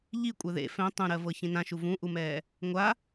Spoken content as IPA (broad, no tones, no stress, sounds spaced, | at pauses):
ʎ i kʷʼ ɛ ð ḛ f ɛ̃ tˤ ũ ɾ ɜ v ɤ ç ĩ n ã ʃ u v ũ ʔ u m ɛː | ŋʷ a